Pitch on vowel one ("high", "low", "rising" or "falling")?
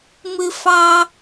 high